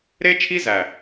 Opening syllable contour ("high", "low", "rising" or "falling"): high